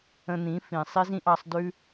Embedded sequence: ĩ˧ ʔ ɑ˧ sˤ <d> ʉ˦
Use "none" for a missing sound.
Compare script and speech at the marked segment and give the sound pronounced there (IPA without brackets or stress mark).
d